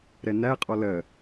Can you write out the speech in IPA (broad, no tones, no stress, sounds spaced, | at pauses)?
ɾ ɛ n æ qʼ ɔ l ɜ